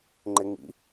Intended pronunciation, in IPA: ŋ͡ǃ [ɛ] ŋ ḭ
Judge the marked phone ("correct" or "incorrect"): incorrect